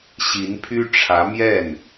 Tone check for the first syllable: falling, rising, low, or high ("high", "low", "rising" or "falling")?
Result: rising